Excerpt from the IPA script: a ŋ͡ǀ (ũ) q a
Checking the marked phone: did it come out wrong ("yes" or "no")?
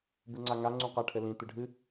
no